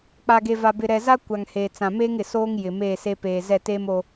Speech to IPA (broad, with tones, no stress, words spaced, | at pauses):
k͡pa˨ɡe˨va˨ bɪ˨ɾɛ˨za˦ kʷa˨ŋheː˨t͡sã˨ meː˦ŋɪ˨soː˦ŋ jɪ˨meː˦˨se˦ peː˨ zɛ˦˨teː˦mo˦